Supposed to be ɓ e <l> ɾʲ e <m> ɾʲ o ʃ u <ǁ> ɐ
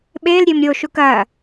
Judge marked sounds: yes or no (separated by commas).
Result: yes, yes, no